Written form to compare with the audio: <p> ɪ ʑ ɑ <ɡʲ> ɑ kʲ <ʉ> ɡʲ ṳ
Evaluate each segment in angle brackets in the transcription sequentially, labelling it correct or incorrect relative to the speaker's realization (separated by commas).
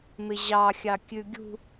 incorrect, incorrect, correct